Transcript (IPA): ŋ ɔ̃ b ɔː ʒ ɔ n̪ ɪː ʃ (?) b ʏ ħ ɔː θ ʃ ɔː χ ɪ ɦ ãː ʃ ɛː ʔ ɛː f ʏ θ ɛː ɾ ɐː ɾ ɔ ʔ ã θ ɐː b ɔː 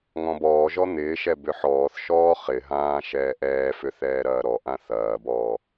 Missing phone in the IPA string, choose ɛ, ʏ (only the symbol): ɛ